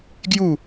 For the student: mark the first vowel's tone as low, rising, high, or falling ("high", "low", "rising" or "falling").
falling